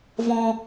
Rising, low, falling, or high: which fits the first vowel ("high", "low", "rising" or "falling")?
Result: high